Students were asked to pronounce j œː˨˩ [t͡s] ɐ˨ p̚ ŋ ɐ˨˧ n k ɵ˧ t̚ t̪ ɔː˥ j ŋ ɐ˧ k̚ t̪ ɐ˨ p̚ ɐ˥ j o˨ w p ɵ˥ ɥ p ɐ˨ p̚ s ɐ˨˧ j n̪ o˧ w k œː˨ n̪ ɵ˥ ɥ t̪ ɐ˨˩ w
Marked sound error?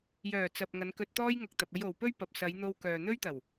no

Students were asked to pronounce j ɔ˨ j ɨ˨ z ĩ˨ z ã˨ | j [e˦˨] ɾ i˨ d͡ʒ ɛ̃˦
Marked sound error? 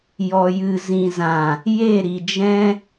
no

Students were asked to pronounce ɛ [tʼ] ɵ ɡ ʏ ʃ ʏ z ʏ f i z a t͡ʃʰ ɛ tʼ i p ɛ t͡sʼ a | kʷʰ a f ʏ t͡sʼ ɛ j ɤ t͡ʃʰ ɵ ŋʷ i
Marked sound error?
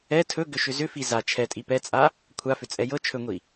yes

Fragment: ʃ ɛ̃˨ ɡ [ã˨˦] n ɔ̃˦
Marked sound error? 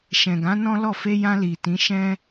no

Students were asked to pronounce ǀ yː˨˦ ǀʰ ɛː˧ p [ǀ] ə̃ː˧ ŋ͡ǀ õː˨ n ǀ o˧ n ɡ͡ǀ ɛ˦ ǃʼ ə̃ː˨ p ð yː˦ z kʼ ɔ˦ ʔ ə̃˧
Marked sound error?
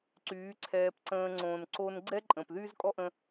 no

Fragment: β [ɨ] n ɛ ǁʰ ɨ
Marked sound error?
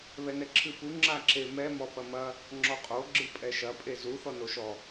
yes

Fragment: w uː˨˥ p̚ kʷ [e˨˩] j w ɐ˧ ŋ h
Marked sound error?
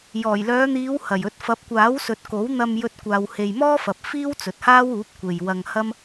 yes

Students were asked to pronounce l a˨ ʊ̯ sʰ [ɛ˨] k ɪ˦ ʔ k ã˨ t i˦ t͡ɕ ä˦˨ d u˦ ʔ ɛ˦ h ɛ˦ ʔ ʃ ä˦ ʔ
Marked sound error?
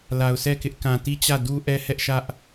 yes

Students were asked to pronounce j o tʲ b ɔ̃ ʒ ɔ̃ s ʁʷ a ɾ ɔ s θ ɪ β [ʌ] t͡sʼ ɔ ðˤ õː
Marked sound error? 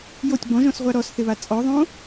yes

